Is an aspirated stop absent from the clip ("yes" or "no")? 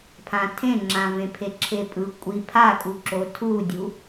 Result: no